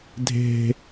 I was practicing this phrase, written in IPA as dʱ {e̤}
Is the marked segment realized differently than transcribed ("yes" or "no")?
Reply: no